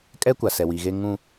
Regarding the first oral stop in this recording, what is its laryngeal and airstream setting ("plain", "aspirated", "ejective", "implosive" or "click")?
ejective